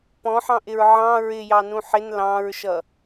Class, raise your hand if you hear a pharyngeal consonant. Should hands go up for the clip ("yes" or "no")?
yes